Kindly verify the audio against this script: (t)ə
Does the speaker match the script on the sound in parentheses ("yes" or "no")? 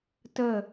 yes